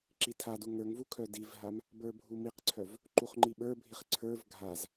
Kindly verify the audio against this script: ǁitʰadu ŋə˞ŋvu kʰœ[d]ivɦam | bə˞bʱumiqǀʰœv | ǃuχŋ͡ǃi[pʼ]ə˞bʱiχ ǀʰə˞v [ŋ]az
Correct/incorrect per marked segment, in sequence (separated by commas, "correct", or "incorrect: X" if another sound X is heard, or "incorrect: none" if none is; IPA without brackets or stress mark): correct, incorrect: ɓ, incorrect: ɡʱ